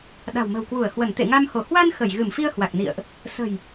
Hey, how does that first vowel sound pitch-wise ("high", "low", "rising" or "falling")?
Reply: low